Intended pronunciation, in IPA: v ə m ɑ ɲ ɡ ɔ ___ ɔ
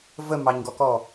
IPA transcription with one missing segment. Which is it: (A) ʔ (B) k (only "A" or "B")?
B